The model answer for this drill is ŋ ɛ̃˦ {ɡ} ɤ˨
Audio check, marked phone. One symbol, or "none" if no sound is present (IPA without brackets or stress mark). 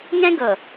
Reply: ɡ